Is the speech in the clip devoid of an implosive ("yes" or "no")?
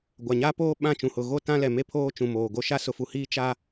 no